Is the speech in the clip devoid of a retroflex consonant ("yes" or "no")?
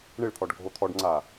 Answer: no